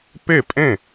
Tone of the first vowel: falling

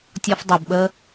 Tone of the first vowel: high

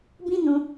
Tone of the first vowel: high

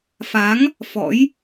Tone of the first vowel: rising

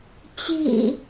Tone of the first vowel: low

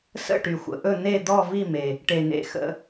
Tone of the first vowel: falling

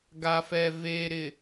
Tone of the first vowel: low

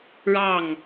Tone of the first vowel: falling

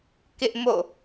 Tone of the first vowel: high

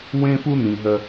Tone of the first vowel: high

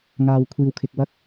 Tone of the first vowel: low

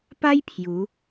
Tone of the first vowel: high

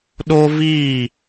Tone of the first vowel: high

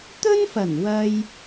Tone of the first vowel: high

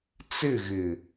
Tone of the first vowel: falling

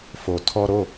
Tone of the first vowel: low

